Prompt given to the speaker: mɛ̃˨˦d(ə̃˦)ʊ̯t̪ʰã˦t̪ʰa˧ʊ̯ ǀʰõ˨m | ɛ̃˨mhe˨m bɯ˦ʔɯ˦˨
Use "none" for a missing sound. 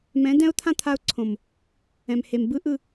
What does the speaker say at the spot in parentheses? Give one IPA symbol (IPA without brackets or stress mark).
ɛ̃˦